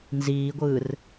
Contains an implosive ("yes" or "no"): no